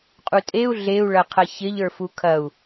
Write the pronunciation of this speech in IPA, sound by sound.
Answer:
qʼutʼeu̯ ɮeu̯ɭɐqʰɐ çɪʎə˞ fukʰɐu̯

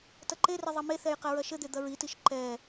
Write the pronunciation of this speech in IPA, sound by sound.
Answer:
tɐǃerɘ ðˤɐmeθɛj qɛɹɐʃɘd̪e d̪ɐɹitiʃ ǃɛ

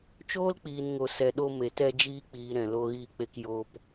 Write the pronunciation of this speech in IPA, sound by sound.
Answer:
t͡ʃoː˦lk͡piː˨nŋo˨ sɛ˨ɗo˧ me˨tɛ˧d͡ʒiː˧k͡piː˨ ɾɛ̃˨lo˧ɣiː˧k͡pe˧k joː˧p

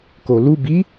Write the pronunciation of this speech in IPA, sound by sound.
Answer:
kolu bi

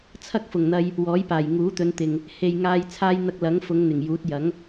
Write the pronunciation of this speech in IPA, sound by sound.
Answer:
t͡sʰɐ˥k̚fʊ˨˩ŋn̪ɐ˧j | wɔː˨˥jpaː˨˩j ŋuː˨˥t̪ɵ˨˧nt̪ɪ˨ŋ | he˨j ŋaː˧j t͡sʰaː˥j n̪ɐ˧k̚lɐ˨˥ŋfʊ˨˧ŋ n̪ɪ˨˩ŋjuː˨˥t̚jɐ˨˥ŋ

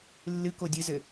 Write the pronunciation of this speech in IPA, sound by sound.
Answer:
lːɨko dʲɨzɘ

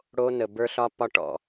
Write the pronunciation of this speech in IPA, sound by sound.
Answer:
ɽo˦nə˨ bə˞˦ɬɒ˦pɒ˦ ʈɔ̰˦˨

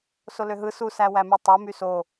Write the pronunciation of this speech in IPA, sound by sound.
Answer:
soløɦɯ susæ wæmytˤo myso

